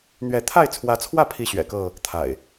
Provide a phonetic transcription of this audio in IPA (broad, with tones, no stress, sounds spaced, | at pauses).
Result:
n̪ ɥ ɛ˨˦ t̪ʰ a˥˨ ɪ̯ t͡sʰ w ä˨˦ t͡sʰ w ä˥˨ pʰ i˥˨ ɕ ɥ ɛ̰˨˩ k ɤ˥˨ | t̪ʰ a̰˨˩ ɪ̯